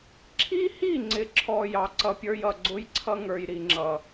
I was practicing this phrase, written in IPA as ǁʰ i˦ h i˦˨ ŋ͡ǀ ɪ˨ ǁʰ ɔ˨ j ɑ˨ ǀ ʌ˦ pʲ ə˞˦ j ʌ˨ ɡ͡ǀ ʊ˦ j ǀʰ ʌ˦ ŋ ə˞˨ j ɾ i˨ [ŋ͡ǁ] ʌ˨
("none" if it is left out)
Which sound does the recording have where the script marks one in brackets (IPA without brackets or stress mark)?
ŋ͡ǁ